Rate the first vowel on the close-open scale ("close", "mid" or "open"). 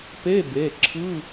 mid